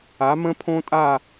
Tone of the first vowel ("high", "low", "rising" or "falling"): rising